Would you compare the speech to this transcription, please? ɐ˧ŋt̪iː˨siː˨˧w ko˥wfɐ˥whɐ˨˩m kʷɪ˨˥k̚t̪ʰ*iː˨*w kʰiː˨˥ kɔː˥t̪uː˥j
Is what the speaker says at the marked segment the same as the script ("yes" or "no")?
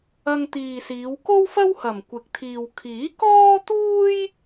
yes